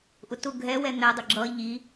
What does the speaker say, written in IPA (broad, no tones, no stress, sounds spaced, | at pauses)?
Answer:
ʔ ʊ t ʊ ɡʱ ɛ w ɛ n̪ ɛ dˤ ʊ ɡ͡ǁ ʌ ʎ i